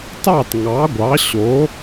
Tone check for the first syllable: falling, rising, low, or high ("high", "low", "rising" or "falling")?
falling